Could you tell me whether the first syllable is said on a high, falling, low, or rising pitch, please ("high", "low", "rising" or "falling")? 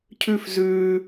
falling